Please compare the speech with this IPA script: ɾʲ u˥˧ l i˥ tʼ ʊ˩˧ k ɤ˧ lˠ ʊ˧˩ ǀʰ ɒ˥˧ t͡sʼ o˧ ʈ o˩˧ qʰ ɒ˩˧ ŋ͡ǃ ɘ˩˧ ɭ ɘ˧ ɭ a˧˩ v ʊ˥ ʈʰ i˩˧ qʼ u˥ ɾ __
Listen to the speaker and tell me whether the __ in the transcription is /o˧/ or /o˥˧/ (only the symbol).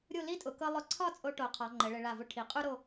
o˥˧